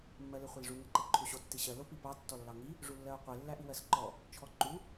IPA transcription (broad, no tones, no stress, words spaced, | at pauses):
mːɜleχʷelʐu ŋɜǃeǃʰuɕo tːiɕɜ lopipɑ tːɔlːɑŋi | ʐulːɜo̯qʷe lːæʔiwɜsǃɔ | t͡ʃʰɔǃu